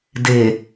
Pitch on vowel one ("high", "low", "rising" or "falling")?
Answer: low